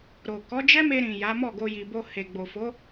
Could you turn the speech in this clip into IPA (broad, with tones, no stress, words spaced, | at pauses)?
ɾo˨ kɔ˨˦d͡ʒɛ˦me˧ɾĩ˨ ja˨˦ mɔ˦˨ɡo˧ ji˨bo˧ he˨ɡ͡bo˨ fo˨˦